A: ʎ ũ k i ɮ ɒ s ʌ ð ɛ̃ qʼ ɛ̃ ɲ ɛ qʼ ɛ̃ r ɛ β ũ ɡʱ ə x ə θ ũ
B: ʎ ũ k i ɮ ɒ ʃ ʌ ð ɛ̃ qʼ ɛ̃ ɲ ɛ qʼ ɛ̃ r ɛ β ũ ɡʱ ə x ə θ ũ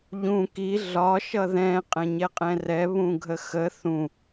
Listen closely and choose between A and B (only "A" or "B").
B